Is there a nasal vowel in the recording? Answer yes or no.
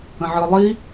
yes